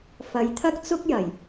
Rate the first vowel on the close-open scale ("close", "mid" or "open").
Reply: open